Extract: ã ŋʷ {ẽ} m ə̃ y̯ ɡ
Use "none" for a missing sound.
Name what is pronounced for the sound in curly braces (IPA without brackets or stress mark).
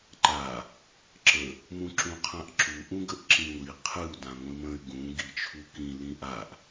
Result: ĩ